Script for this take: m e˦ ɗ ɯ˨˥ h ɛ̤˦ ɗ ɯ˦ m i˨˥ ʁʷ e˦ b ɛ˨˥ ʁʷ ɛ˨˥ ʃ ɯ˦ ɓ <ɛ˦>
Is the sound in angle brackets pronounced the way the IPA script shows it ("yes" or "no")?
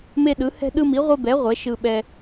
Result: yes